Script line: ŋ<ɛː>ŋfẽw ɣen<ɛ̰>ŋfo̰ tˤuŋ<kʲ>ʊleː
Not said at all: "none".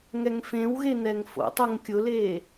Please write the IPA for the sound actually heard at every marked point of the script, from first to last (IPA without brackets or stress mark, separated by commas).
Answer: ɛ, ɛ, kʲ